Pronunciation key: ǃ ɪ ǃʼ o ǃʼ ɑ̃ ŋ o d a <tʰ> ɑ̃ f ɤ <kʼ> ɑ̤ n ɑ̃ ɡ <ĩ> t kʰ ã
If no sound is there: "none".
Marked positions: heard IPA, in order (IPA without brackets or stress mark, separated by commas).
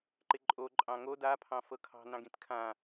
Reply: pʰ, kʰ, ĩ